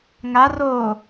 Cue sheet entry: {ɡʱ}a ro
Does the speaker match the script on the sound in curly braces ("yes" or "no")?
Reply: no